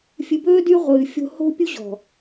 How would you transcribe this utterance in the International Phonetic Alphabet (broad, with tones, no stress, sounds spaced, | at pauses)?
fʲ ɨ˨ b ɵː˦ d y˦ ʁʷ ɨː˨ fʲ o̤˦ h o̤˦ pʲ u˦ ʑ ɔ̤˨